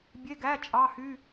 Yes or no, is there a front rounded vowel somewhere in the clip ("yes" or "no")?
yes